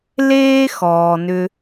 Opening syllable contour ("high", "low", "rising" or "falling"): high